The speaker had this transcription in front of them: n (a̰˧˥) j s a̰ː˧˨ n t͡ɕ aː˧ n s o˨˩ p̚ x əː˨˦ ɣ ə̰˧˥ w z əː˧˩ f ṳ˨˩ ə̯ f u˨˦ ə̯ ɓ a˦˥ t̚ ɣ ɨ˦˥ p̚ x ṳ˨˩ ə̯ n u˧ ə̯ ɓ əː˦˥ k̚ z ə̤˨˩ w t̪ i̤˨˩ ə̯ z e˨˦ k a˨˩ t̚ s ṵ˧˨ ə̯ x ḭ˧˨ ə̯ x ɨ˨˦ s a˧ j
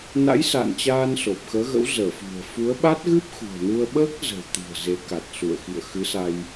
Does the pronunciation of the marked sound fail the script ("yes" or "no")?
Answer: no